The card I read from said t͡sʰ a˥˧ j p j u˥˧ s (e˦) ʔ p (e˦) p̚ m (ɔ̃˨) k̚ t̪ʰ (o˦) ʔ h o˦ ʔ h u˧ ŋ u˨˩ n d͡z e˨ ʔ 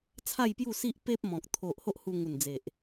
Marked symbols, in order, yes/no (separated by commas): no, yes, yes, no